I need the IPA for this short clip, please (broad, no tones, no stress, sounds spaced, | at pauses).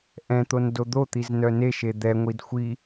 ʔ ɛ̃ t̪ o n d o d̪ o t̪ i z n œ n e ʃ e d̪ ɛ ŋʷ i d xʷ i